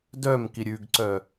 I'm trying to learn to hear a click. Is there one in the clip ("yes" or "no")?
yes